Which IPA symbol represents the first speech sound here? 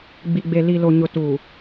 ɡ͡b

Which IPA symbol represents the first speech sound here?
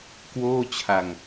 k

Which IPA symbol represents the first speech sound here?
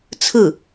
t͡sʰ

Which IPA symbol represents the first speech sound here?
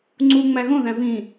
ŋ͡ǀ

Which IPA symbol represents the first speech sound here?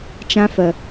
t͡ʃ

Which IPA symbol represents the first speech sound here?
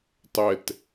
tˤ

